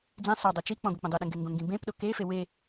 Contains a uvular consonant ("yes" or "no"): no